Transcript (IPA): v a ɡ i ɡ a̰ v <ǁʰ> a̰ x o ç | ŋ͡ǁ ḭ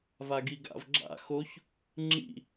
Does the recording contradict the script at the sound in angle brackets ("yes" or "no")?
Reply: yes